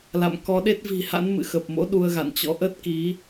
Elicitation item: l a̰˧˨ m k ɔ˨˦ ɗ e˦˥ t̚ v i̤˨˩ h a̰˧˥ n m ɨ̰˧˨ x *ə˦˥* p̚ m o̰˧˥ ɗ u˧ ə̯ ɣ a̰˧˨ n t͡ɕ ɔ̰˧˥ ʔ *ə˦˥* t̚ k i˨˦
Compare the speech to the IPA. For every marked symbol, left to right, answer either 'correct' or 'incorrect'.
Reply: incorrect, correct

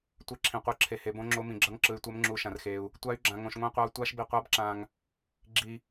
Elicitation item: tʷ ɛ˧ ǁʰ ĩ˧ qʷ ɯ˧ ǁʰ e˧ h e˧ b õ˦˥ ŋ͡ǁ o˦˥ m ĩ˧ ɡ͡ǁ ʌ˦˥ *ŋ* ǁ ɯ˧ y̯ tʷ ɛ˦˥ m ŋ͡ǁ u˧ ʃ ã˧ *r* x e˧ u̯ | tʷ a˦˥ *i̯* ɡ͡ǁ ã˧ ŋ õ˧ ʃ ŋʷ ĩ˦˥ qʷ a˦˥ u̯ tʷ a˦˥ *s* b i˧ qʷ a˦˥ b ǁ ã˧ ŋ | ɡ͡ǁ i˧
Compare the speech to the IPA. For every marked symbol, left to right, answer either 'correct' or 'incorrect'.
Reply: correct, correct, incorrect, incorrect

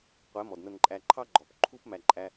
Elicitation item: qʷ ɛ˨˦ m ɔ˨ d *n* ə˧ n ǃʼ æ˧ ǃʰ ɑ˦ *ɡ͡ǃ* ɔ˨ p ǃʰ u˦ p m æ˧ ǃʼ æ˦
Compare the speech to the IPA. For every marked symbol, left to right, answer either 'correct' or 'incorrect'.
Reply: correct, correct

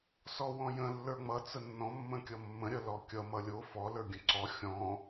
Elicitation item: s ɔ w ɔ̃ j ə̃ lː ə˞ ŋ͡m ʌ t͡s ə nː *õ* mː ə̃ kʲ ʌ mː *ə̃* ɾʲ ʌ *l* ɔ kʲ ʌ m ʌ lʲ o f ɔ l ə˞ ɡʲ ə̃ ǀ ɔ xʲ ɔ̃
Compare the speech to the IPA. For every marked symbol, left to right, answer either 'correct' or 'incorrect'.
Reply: incorrect, correct, correct

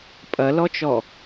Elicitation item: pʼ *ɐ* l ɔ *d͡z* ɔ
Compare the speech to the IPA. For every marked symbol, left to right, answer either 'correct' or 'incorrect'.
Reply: correct, incorrect

